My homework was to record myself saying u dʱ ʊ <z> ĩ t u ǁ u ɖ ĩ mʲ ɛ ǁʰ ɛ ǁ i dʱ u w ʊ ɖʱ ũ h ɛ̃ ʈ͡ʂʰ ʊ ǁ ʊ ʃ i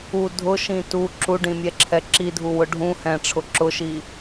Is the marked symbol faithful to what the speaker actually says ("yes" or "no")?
no